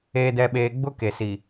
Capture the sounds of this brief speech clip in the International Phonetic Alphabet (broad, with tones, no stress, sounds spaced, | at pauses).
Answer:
eː˨ d ɛ˨ ɓ eː˨ ɡ͡b ʊ˦ k e˨ s i˨